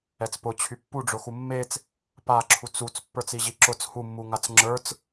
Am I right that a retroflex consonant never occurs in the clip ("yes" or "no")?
no